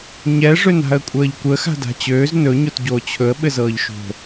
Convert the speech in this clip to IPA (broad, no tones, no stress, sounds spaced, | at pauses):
ɲ ɛ ʐ ø n a̤ ə̯ kʷʼ əː ʎ kʷ əː x a̤ d a̤ t͡ɕ øː z n ɵ ɲ o t ɟ oː t͡ɕʰ ɵ ə̯ ɓ ɘ z ɤː ʎ ʃ o̤